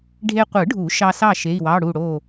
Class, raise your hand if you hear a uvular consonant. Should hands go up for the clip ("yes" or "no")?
yes